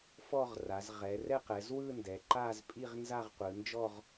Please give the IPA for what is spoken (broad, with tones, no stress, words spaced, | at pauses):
fɔ˥˧ʁra˩˧zʁɛ˩˧ rɛ˥˧qɛ˩˧zwɯ˥˧ ndɛ˩˧ǃa˥˧zpʼi˥˧ʁ nza˥˧ʁqʷɯ˩˧nd͡ʒɔ˥˧ʁ